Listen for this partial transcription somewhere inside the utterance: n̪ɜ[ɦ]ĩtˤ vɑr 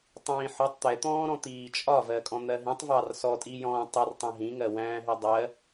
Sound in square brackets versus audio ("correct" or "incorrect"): correct